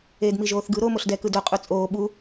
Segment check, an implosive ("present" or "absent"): present